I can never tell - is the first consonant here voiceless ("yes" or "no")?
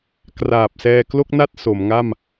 yes